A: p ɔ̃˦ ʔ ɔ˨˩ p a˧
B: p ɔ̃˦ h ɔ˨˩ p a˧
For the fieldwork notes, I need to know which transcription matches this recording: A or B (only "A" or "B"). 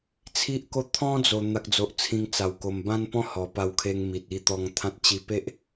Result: B